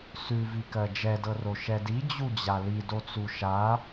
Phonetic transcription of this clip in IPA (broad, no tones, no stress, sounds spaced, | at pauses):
s ʉ v i k ɜ d͡ʒ ɛ d ɤ r o ʃ ɛ d i d͡ʑ u d͡ʑ a l i d o t͡s u ʃ a